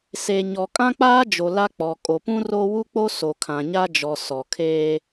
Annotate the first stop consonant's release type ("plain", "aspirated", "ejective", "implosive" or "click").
ejective